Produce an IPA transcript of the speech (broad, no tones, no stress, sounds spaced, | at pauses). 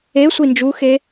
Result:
e sʷ i n d͡ʒ u x e